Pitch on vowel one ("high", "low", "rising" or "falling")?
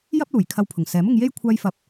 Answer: high